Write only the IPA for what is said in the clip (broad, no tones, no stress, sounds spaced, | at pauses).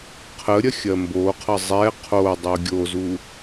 qʰ ə ɾʲ ɐ xʲ ɐ m b o qʰ ʌ zˤ ɛ qʰ o dˤ u ɡʲ o z u